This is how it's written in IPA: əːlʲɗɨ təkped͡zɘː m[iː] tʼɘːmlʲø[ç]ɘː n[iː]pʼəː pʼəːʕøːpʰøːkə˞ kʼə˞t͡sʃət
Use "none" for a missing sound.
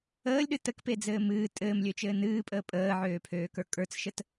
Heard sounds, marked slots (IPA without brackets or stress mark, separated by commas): ɨː, t͡ʃ, ɨː